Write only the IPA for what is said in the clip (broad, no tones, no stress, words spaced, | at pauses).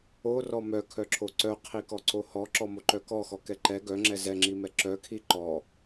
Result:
orɔ mœkʰœǁʰo ǀœqʰikɔǀo hɔǁɔmoǃœ kɔxɔkɛ ǃɛ ɡœŋ͡ǁɛ zɛŋ͡ǁimɛ ǁœkʰi ǃɔ